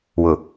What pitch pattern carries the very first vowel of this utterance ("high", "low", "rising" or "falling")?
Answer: low